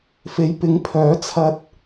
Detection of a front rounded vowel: present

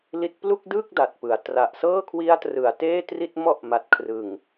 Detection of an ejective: absent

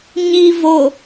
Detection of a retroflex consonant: absent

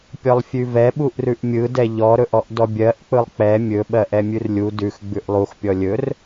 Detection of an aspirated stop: absent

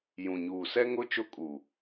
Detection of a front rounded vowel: absent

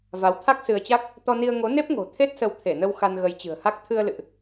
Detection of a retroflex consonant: absent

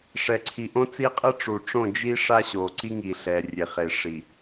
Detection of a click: present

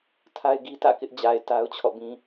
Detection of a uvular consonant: absent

